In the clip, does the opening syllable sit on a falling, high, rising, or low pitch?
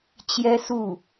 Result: high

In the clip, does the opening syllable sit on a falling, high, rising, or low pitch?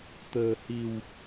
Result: low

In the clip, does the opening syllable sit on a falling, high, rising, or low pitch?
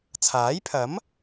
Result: rising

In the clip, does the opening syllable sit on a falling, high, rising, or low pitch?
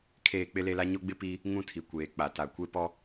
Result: falling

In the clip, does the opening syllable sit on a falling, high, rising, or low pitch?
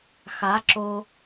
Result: rising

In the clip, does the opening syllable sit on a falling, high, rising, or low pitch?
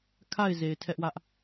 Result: falling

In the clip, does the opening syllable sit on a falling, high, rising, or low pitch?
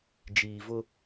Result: low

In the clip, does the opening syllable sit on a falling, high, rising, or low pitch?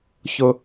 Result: high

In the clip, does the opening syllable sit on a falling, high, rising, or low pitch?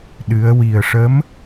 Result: rising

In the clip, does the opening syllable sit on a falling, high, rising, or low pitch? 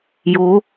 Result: rising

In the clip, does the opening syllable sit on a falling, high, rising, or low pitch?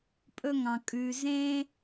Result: high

